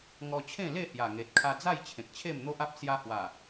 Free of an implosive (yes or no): yes